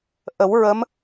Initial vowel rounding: unrounded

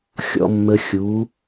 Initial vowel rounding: rounded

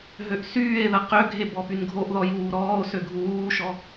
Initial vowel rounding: rounded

